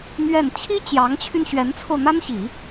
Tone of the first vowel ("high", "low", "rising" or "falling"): falling